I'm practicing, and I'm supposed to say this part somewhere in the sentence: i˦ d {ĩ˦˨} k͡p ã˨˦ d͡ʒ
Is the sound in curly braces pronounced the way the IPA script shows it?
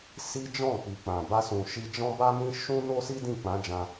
yes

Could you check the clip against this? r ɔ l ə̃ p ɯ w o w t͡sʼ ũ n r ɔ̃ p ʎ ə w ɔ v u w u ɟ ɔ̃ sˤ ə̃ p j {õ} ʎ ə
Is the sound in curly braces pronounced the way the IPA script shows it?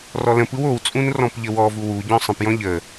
no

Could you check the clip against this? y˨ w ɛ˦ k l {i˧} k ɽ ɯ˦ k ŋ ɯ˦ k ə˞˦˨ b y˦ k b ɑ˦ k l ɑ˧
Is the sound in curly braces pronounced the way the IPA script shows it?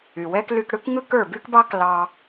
no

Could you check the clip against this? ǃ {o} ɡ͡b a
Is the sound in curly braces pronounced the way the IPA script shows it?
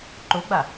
yes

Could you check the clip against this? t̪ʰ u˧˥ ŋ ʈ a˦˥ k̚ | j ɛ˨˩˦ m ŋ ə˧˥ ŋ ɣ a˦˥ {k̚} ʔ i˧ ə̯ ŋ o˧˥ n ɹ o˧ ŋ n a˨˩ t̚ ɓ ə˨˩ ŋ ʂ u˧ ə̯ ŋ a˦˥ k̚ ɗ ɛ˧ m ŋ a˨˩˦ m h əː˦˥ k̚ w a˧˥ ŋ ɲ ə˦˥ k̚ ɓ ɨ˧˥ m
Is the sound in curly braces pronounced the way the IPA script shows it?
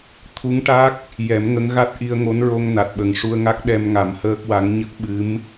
no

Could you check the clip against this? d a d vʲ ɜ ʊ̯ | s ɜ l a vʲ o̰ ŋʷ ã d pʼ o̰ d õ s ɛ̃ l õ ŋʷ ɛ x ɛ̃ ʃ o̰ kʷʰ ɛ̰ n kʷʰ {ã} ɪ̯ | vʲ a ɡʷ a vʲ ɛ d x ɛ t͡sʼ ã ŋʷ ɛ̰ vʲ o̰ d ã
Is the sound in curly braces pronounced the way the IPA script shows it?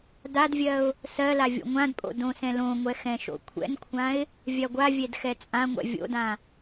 yes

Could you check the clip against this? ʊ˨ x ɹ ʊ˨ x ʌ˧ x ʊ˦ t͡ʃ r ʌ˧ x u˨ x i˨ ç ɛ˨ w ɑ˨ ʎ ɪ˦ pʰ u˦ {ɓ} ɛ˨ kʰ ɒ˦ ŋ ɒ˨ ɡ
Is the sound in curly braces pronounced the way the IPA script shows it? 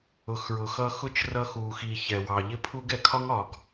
no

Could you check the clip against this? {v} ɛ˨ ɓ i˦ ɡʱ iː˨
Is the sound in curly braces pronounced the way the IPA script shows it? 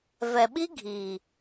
yes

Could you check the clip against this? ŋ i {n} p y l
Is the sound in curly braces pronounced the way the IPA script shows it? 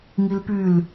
no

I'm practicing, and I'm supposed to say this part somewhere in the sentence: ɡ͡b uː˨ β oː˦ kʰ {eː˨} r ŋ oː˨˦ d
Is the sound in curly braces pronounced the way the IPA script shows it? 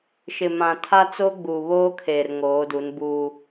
yes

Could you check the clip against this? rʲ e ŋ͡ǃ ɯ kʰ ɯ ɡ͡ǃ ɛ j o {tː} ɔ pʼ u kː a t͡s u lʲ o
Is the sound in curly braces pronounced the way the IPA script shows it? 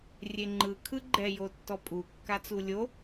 yes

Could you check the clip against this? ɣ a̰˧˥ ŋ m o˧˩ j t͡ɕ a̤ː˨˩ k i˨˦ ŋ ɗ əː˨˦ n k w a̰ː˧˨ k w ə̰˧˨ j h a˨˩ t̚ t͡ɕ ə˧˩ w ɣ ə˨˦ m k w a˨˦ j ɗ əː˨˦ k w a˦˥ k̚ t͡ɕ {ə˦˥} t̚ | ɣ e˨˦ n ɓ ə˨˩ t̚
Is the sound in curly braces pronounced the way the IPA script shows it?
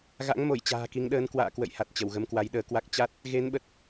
no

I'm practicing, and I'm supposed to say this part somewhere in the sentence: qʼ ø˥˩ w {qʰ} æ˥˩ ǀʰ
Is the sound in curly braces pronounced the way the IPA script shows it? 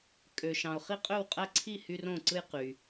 no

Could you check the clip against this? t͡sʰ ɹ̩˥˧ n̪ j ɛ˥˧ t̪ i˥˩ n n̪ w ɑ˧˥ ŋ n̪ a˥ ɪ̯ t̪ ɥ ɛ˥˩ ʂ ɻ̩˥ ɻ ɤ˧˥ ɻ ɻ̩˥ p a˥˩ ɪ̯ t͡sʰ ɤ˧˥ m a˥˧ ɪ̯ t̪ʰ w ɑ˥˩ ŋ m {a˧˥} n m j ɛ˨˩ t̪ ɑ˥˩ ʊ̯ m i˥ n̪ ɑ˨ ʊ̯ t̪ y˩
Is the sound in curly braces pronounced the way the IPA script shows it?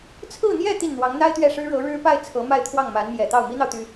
yes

